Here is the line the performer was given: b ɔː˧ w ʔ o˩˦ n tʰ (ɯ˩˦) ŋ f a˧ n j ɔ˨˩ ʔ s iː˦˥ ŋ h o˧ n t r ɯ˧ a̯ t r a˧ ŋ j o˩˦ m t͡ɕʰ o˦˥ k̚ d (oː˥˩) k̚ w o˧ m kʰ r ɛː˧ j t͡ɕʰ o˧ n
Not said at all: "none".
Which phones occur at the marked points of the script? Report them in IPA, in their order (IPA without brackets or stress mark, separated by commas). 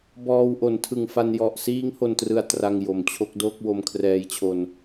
ɯ˨˩, oː˥˩